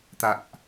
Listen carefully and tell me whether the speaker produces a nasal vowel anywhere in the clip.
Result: no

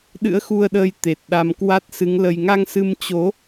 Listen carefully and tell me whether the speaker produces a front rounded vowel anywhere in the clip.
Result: no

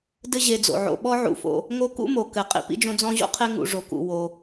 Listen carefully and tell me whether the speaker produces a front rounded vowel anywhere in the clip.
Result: no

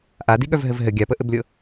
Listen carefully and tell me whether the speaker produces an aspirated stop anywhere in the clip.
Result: no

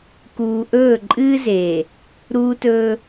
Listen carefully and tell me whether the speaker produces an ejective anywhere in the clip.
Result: yes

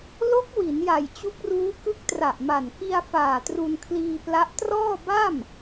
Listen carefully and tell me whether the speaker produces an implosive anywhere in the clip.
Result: no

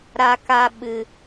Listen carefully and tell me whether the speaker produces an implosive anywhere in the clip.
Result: yes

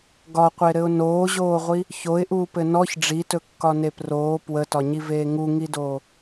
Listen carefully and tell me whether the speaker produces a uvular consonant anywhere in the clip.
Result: yes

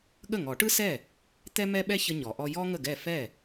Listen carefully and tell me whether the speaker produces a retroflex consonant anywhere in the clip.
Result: yes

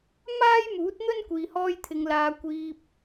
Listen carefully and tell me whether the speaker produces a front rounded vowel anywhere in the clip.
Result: no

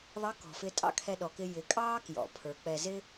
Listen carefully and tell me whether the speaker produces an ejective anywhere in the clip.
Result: yes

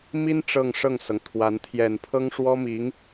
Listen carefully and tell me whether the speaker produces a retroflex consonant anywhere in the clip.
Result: yes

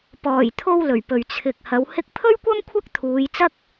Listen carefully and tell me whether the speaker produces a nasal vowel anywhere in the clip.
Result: no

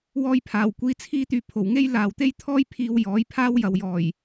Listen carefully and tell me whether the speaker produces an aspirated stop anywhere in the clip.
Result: yes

